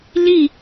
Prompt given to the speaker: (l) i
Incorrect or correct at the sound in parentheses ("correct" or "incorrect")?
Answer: correct